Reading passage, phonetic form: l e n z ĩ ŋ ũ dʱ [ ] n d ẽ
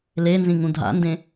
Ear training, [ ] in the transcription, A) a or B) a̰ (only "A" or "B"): B